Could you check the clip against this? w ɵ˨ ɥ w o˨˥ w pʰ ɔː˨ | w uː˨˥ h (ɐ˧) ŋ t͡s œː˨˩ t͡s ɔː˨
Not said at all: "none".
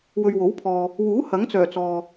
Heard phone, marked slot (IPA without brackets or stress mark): ɐ˨˥